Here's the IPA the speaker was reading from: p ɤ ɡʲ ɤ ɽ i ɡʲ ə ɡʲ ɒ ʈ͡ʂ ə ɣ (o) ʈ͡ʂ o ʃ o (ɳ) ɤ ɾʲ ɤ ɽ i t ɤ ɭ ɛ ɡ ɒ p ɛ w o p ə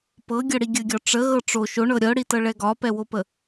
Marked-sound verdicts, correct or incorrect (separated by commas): incorrect, correct